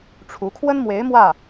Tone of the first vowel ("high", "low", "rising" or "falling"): rising